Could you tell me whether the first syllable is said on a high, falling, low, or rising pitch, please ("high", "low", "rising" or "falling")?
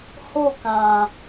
falling